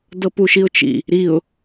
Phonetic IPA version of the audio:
dɤpuʃiʊ̯t͡ʃḭ | ɾiʊ̯

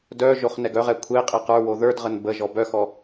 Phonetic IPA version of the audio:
dœ ʒoχnɛɡœʁɛ kʷʰeqʼe qə˞wo ðə˞dʁən bəʒɔ bœxɔ

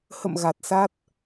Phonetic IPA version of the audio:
hə̰˧˨m ɣa˨˩t̚sa˦˥t̚

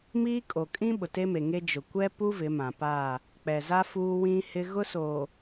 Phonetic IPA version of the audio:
miː˦kʼo˨ kʼĩ˦ ɓʊ˨te˦me˨ŋe˦ d͡ʒʊ˨ kʷɛ˦pu˦ vɪ˨˦ mã˨pa˦˨ | k͡pɛ˨za˦ fuː˦wĩ˦ hɪ˦ ɣʊ˦soː˨

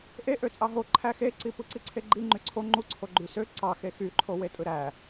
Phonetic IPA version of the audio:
ʔe ʔøt͡sʼɑɦo ǃʰæxeǀi pɯǀiǀʰeɡ͡ǃi ŋ͡ǃyǀʰo ŋ͡ǃuǀʰo ɡ͡ǃysø ǀɑ xexyǃʰo wetʼɯɾæ

